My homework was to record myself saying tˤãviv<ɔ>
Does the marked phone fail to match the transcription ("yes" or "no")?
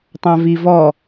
no